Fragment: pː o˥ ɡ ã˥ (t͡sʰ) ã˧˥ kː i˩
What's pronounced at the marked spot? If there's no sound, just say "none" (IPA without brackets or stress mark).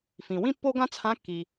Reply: t͡sʰ